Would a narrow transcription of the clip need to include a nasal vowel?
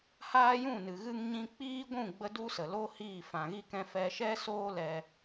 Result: yes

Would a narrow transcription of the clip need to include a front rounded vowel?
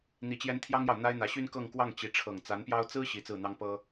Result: yes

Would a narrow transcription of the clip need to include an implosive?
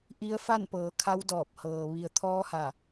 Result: no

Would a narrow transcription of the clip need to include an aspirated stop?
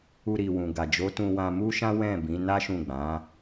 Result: no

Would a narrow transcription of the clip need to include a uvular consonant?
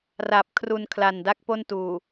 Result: no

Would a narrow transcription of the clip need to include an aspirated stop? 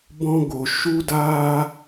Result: no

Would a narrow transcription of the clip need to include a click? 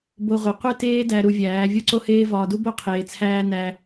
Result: yes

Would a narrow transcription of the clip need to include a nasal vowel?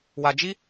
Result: no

